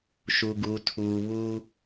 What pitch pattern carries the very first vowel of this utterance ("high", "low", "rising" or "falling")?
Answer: low